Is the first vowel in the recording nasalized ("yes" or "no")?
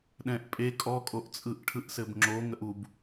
yes